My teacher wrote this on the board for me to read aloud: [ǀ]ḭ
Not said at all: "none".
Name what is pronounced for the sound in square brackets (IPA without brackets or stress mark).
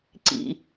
ǀ